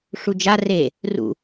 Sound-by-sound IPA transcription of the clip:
ʂ u d͡ʒ a r e | r ṵ

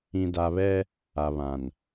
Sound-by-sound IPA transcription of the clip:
ĩ˨ d a˨ β ɛ˦ | a˨ β ã˨ n

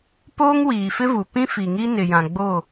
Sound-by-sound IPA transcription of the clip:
p oː˦ ŋ w iː˨ f ɪ˦ v u˨ p ĩ˦ f i˨ ŋ i˦ n ɪ˨ j ã˨ ɡ͡b o˦˨

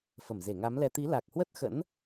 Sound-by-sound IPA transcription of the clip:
f ə˧˩ m z e˧˩ ŋ a˨˦ m l ɛ˧ t̪ i˨˦ l a˨˩ k̚ h w ə˦˥ t̚ x ə̰˧˥ n

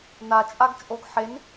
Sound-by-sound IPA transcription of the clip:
n a t͡ʃʼ a ɡ t͡ʃʼ o ɡ ħ e n

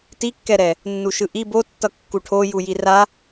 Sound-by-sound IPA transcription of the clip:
t i kː ɛ ɾ ɛ | nː u ʃ ɯ ʔ i b o tː ʌ kː u ʈʰ o j u j i r a

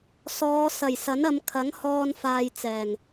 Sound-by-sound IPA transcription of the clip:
s ɔː˨˧ s ɐ˨˩ j s ɐ˨˥ n ɐ˨˧ m kʰ ɐ˨˥ ŋ h ɔː˧ n f aː˧ j t͡s ɛː˨˩ ŋ

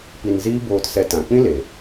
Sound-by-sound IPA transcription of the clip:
p i˧ n z iː˦ b oː˧ t s ɛ˧ t ã˨ k͡p ĩ˦ l e˨

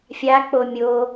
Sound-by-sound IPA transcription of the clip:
fʲ a k͡p o mʲ o

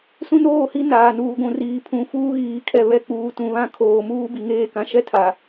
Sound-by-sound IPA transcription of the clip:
s ũ˦ n oː˦˨ h i˦ n aː˨ n uː˨ ɡʷ ũ˨ r iː˨ pʰ ũ˨ f uː˦ ɣ iː˨ kʰ ɛ˨ β ɛ˨ k͡p uː˨ t ũ˨ β ã˦ kʰ oː˨ m uː˦ b i˨ ŋ eː˦˨ k ã˨ ʃ ɛ˦ tʰ a˨

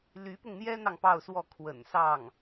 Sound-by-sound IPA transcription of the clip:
l y˧˥ p ʊ˧ ŋ n̪ j ɛ˥ n̪ ɑ˨ ŋ p ɑ˥˧ ʊ̯ s w ɔ˥˩ kʰ w ə̰˨˩ n s ɑ˥˩ ŋ

